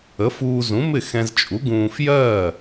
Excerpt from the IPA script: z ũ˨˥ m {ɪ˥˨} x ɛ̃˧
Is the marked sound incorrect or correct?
correct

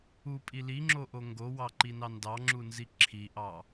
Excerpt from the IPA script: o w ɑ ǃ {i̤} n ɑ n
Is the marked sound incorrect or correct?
incorrect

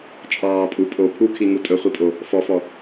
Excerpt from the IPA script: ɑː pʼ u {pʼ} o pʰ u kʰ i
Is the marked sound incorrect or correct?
correct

